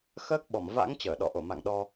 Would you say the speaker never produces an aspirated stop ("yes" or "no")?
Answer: yes